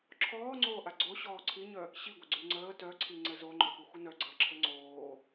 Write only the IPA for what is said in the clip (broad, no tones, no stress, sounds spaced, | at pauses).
ǁʰ ɔː ŋ͡ǀ oː ʔ a ɡ͡ǀ o ɕ ɔː ǀʰ i ɲ œ | ɕ i ɡʷ ə ɡ͡ǀ y ŋ͡ǀ əː t œ ǀʰ i ŋ͡ǀ ɘ z o ŋ͡ǃ œ p u xʷ ə n œ ɡ͡ǀ əː ǁʰ ɘ ŋ͡ǀ oː